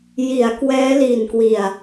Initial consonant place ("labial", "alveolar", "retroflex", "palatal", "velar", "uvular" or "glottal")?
palatal